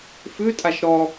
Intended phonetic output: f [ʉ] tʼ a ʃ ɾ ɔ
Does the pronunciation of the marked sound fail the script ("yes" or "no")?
no